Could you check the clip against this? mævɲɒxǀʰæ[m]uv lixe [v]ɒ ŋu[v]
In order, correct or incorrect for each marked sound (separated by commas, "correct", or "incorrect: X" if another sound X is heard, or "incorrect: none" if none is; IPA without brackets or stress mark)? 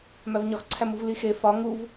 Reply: correct, incorrect: f, correct